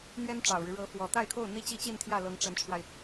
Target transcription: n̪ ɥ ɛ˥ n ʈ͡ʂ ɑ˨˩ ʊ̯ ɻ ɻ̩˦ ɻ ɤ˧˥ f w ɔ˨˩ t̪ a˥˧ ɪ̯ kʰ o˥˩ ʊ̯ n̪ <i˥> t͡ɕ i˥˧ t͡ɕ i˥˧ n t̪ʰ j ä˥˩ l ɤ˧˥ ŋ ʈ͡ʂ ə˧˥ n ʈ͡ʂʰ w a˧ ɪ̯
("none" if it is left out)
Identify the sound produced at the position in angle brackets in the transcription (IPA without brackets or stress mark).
i˥